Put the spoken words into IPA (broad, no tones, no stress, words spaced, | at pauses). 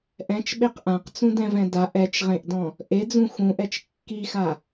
ʔɛ̃t͡ʃɓeq ʔãqt͡sũdɛ̃vɛ̃ daʔ ɛt͡ʃʁẽʔdɔ̃ | ʔed͡zũ xũʔɛt͡ʃ kːixa